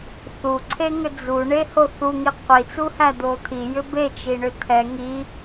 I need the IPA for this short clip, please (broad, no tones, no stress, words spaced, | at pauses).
θuǀʰeŋʏ d͡zuɳeho θuŋi qʷit͡suhæd̪o t̪ʰijʏ bet͡ʃiɳʏ t̪ʰɛ ŋi